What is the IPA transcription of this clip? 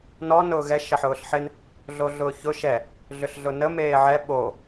n ɔ n ʊː ɣ ɛ ʃ ɐ ħ ʊː ɬ ħ ɪ n | ɮ o ɮ ʊː ç ʊ ʃ ɛ | ɮ ʏ ɬ ɮ ʊ n ə m eː ʕ ɛ ɓ o

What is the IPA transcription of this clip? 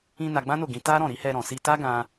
ĩ˧ n a˧ ɡ͡b ã˦ n o˦˨ ɡ ĩ˨˦ t a˦ ɾ ɔ̃˦˨ ɾ i˨˦ h ɛ˧ ɾ ɔ̃˨ s i˧ t a˦ ɡ ã˧

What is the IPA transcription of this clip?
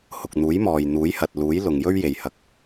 h ʊ˨ k̚ n̪ uː˨˥ j m ɔː˨ j n̪ uː˨˥ j h ɐ˨ t̚ l uː˨˥ j l ʊ˨ ŋ j ɵ˥ ɥ j e˨ j h ɐ˧ k̚

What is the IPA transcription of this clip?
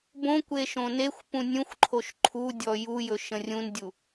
b õ kʷ e ʃ õ n e xʷ p ũ nʲ ũ xʷ ǃʰ o ʃ ǃʰ u dʲ ɔ j u j ɵ ʃ ə̃ rʲ ũ n dʲ u

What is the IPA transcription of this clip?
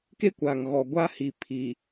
k e˦ kʷ aː˨ ŋ ɣ ɔ˨ ɡʷ a˦ h i˨ pʰ i˨

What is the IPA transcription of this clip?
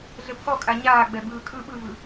ɮ ɘ pʰ ɔ kʼ a ɲ aː ɡ͡b ɛ b ɯː kʼ ɯ ɓ ɯ v ɯ

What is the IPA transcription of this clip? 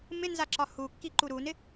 m ɪ n z a ǁ ɒ h u kː i ǃ u ɾ u n ɪ

